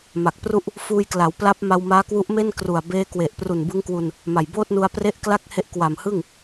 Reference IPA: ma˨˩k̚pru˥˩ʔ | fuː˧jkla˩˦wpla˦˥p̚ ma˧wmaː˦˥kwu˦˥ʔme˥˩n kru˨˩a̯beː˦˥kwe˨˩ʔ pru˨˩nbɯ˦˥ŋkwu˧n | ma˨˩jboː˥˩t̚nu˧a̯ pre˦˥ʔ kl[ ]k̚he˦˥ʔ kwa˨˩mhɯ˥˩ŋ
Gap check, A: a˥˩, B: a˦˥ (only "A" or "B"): A